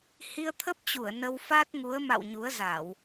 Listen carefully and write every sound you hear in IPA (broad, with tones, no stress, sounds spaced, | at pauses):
h i˧ ə̯ t̪ʰ ə˦˥ p̚ t͡ɕ u˧˩ ə̯ n ə˧ w f a˦˥ t̚ ŋ u˨˦ ə̯ m a̰˧˨ w ɲ u˨˦ ə̯ z a˧˩˨ w